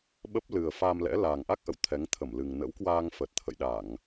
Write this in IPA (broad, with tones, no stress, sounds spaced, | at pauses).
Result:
ɓ ə˦˥ p̚ l ɨ˨˩ ə̯ f a˧ m l ɛ̰˧˥ l aː˨˩ ŋ ʔ a˦˥ k̚ ʔ ə̰˧˨ w t̪ʰ ɛ˨˦ ŋ t̪ʰ ə˧˩ m l ɨ˨˩ ŋ n ə̰˧˥ w k w aː˧ ŋ f ə˨˩ t̚ t̪ʰ ə̰˧˨ j ɗ a˧˩˨ ŋ